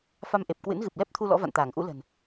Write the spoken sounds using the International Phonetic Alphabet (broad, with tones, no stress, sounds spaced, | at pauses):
f a˧ m ʔ e˨˩ p̚ k w ɨ̰˧˥ n ɣ ɨ˨˩ p̚ l ɛ˦˥ p̚ t̪ʰ u˧ l ɔ̰˧˥ v a̰˧˨ n t̪ aː˧˩ ŋ ʔ ṵ˧˥ l ə̤˨˩ n